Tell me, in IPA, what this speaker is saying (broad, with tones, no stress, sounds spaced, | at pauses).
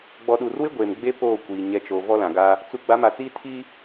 ɡ͡b ɔ˨ ɗ u˨ r w ɪ˦ ɡʷ eː˨ m ɡ͡b e˦ p oː˦˨ kʷ iː˨ ɲ ɛ˨ t͡ʃ o˨ v ɔ˦ l ã˨ ɡ a˦ | t͡s u˨˦ ɡ͡b a˨˦ m a˨ t͡s iː˦ tʰ i˦